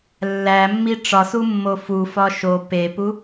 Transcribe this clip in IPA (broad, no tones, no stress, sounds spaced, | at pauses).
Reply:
lː æ mː i ʈ͡ʂ ɒ s u mː o f u f ɒ ʃ o p e p u